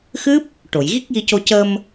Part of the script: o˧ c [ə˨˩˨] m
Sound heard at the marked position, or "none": ə˧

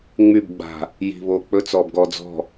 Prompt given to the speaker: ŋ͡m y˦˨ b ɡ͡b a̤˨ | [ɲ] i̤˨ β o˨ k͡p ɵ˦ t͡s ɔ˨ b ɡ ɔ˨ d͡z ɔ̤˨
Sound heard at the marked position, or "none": j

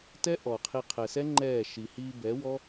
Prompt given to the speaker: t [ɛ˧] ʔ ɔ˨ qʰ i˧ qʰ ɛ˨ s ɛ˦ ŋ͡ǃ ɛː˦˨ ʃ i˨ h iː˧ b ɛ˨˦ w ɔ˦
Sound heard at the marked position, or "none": ɛ˦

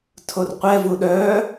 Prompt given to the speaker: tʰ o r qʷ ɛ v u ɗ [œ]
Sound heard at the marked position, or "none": œ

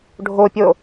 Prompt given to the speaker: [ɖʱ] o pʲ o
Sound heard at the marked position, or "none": ɖʱ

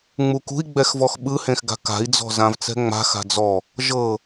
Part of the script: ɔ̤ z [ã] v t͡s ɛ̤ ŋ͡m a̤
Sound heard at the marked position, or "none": ã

